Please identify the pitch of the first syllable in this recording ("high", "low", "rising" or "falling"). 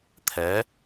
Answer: rising